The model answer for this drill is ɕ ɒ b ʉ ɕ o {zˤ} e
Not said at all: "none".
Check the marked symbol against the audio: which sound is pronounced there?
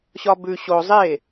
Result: zˤ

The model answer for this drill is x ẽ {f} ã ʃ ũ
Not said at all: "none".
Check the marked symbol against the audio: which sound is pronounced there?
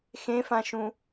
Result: f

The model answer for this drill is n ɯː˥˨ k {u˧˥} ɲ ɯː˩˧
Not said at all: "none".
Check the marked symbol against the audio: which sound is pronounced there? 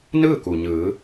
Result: u˩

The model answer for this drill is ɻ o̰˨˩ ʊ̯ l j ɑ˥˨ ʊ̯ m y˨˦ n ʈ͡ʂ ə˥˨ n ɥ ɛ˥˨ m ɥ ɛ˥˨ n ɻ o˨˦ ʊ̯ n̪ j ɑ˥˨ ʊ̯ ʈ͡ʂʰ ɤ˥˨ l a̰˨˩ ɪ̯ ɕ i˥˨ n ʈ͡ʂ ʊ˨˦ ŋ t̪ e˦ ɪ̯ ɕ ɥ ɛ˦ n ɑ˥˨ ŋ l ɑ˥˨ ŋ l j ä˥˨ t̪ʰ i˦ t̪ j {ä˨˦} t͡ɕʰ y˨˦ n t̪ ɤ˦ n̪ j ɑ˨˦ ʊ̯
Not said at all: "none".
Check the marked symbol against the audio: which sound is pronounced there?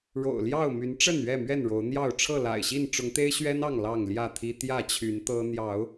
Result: ä˥˨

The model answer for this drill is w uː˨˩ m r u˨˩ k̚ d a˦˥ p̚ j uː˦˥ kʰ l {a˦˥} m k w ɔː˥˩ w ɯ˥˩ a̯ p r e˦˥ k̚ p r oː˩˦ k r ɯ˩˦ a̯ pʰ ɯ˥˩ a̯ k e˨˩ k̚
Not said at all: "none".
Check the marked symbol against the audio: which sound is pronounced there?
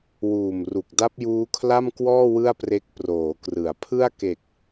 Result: a˥˩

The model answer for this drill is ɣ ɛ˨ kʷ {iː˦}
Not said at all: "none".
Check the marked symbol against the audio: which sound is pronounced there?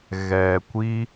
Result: i˦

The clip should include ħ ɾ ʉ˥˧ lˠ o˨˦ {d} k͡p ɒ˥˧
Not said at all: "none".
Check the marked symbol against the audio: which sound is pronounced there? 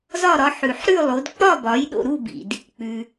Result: d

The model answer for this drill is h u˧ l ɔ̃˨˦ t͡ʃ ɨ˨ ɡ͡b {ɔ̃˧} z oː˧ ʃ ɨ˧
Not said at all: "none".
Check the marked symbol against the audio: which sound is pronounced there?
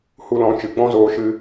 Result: ɔ̃˦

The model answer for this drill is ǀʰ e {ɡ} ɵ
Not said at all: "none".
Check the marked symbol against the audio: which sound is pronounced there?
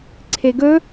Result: ɡ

